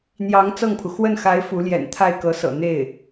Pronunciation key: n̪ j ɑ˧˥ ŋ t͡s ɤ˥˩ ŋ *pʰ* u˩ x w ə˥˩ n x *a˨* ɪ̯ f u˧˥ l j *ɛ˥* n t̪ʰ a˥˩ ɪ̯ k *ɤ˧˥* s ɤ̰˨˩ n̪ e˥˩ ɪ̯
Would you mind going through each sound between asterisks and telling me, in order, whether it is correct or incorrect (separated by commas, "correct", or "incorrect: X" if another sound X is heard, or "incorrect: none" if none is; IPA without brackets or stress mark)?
correct, incorrect: a˧˥, incorrect: ɛ̰˨˩, correct